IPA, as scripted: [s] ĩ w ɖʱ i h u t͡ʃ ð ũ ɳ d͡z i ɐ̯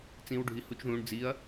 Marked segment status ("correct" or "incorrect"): incorrect